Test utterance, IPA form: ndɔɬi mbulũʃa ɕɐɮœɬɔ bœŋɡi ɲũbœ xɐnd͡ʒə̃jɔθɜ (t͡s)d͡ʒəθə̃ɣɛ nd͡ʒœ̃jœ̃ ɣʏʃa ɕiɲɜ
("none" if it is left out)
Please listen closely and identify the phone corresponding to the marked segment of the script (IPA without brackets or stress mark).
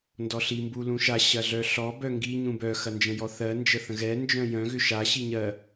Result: n